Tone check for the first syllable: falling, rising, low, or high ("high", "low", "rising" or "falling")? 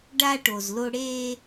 high